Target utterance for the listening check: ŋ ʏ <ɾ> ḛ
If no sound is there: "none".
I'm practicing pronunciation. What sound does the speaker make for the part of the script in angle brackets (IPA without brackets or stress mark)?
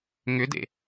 d